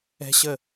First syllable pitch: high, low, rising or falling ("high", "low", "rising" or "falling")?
high